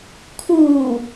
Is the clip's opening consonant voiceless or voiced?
voiceless